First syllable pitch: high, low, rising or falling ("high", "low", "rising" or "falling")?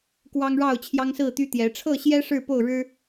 high